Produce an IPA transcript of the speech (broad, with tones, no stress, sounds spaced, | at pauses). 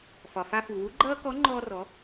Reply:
f ɒ˩ f a˧ f u˩ w u˧˥ ɡ͡ǃ ʌː˥ k ɔ˧˥ ŋ͡ǃ ɔː˧ r ɔ˩˧